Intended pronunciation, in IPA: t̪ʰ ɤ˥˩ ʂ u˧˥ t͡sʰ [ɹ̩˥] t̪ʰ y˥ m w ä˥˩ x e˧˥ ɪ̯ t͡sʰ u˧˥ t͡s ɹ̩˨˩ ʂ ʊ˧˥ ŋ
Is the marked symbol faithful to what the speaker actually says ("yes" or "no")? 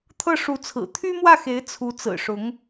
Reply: no